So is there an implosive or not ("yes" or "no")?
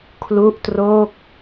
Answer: no